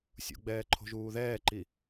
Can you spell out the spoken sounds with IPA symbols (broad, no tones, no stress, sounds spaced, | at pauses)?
sʲ ṵ ɡ͡b ɛː ǃʰ o̤ ʒ uː ð ɛː ǃ i